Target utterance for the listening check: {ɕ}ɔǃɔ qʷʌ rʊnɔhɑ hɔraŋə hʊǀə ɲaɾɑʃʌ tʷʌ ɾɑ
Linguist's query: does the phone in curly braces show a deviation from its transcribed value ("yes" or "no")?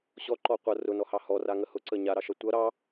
no